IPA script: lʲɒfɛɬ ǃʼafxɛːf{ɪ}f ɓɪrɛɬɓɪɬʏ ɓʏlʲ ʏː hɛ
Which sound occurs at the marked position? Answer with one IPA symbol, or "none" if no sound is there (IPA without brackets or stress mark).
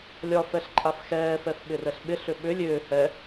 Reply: ɛ